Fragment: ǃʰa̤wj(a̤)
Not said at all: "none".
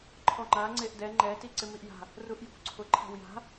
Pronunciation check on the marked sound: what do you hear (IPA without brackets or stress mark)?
a̤